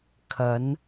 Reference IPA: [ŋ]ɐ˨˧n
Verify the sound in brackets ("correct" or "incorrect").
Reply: incorrect